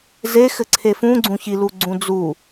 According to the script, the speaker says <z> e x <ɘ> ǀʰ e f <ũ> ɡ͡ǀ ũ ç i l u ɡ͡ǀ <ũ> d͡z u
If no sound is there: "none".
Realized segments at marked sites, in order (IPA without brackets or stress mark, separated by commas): z, ɘ, ũ, ũ